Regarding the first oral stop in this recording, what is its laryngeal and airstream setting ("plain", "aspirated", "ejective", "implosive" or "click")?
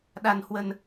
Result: implosive